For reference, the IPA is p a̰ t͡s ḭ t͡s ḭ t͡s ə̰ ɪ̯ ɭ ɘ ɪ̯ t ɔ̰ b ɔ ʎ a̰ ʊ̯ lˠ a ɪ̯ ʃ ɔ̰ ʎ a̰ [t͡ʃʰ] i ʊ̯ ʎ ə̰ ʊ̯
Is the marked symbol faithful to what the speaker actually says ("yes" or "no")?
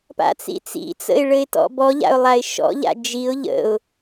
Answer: no